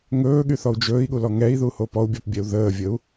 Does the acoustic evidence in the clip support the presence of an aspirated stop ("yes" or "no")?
no